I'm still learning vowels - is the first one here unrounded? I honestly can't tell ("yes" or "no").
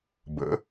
yes